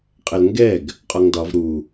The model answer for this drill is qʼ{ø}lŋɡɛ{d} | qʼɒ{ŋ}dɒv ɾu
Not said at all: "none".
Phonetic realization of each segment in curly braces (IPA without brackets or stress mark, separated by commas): ɛ, ɡ, ŋ